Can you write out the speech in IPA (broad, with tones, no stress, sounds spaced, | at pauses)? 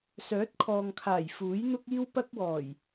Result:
s œː˨˥ t̚ kʰ ɔː˨ ŋ kʰ aː˨˩ j f uː˨˥ j n̪ ʊ˥ k̚ iː˥ w p ɐ˥ k̚ w ɔː˨˩ j